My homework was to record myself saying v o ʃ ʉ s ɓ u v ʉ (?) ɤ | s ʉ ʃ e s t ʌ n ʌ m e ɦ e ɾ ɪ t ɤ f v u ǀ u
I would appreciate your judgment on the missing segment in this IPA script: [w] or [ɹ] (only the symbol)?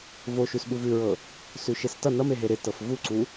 ɹ